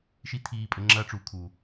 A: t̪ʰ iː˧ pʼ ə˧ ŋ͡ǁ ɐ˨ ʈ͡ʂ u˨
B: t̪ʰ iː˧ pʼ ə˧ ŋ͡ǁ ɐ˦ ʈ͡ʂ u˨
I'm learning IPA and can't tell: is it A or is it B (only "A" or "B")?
B